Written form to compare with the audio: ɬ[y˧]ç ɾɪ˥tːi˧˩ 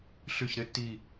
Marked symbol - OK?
no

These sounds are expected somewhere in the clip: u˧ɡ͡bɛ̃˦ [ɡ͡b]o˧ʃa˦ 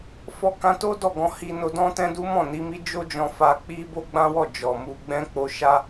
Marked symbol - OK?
no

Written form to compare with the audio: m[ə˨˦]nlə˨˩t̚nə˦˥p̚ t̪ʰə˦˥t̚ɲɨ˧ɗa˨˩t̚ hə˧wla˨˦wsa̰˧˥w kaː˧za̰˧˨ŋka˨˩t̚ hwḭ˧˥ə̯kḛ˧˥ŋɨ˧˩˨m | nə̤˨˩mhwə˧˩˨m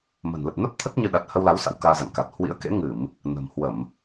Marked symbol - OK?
no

